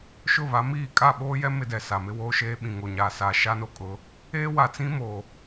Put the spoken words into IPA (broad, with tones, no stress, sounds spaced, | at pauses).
ʃ ʊ˦˨ β a˨˦ m iː˦˨ kʼ a˦˨ ɓ oː˦ j ɛ˦ m ɪ˦ d ɛ˨ s a˨ m ɪ˦ w oː˦ ʃ eː˦ ɓ ĩ˨ ŋ o˨ ɲ aː˨ s a˨ ʃ a˦ n o˦ kʼ ʊ˨˦ | eː˦ w a˨ t͡s ĩ˦ m o˨